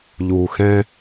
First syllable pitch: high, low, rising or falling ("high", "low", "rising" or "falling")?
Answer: low